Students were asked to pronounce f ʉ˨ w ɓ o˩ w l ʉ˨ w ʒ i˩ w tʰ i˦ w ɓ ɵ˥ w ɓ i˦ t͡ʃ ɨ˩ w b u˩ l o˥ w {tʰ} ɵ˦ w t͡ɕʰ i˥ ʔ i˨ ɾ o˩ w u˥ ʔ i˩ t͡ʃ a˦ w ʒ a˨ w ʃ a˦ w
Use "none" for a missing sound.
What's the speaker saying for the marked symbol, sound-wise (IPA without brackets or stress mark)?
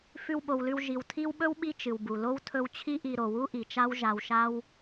tʰ